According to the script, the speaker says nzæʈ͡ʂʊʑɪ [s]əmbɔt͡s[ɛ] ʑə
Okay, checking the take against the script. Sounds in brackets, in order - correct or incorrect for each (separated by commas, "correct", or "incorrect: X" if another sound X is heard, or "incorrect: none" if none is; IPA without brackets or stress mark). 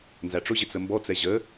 incorrect: t͡s, correct